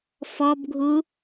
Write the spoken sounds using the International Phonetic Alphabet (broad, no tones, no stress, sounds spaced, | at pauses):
f ɔ b ɡʱ u